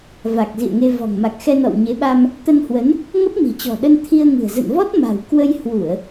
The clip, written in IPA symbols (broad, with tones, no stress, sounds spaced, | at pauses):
v a˨˩ k̚ z ḭ˧˨ ə̯ ŋ e˧ v ɔ̤˨˩ ŋ m a˨˩ k̚ x ɛ˧ n ɔ̰˧˨ w ɲ e˨˦ ɓ a˧ m | t̪ ə˧ n h w ə˨˦ n | ŋ ə˦˥ p̚ m i̤˨˩ t͡ɕ ɔ̤˨˩ ɗ ə˧ n t̪ʰ i˧ ə̯ ŋ ɨ̤˨˩ ə̯ z ə̰˧˨ n v ɔ˦˥ t̚ m a̤˨˩ w k w ə˧ j h w u˧˩˨ ə̯